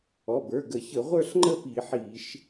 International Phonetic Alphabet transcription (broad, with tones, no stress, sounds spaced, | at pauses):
ɔ˩˧˩ b ə˞˩˧˩ ɡ ə˧˩˧ ç ə˧˩˧ ʁʷ ə˞˥˧ ɬ ŋ͡ǃ ə˥˧ p i˧˩˧ ħ i˧˩˧ ʃ